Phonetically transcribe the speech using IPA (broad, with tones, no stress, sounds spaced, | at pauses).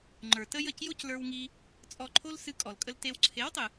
ŋ͡ǃ ə˞˨ t ə˦ j ə˦˨ c j o˦ c l ə˞˧ w ŋ i˧ | t͡sʼ ɔ˧ ǃʰ o˦ l s ɨ˧ kʼ ɔ˨ l kʼ ə˧ l t e˧ w ǀʰ e˨˦ w tˤ ɨ˨